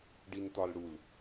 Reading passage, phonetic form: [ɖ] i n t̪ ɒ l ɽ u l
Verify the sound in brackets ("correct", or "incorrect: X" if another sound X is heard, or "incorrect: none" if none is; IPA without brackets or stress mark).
correct